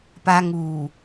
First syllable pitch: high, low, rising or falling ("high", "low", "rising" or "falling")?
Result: high